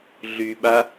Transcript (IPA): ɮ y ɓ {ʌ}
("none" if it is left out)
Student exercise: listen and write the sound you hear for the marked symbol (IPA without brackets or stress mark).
a